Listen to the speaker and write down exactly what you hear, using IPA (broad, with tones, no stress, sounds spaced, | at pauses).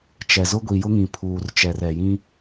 t͡ʃ ɛ˨ z ʊ˦ ɡʷ i˨ j ʊ˦ ŋ ĩ˨ pʰ uː˨ r t͡ʃ ɛ˨ r ɛ˨ j ĩ˦